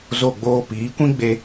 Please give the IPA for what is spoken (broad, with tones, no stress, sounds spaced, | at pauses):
z o˦˨ ɡ͡b oː˦ p iː˨˦ kʷ ĩ˦ ɡ͡b e˧